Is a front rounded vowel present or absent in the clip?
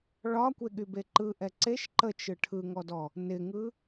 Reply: present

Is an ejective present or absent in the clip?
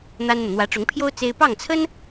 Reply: absent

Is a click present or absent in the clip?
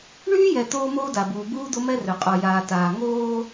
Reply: absent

